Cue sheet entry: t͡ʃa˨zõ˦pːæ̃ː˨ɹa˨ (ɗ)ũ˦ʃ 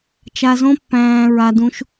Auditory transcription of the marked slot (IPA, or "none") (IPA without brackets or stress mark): d